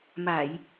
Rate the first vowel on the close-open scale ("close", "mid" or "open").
open